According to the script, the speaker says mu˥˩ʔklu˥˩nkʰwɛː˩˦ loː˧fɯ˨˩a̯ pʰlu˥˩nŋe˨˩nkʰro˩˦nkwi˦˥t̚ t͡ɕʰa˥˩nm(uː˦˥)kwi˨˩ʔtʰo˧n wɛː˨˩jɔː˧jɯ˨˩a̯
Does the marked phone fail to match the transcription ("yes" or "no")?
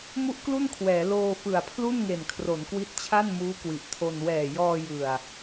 no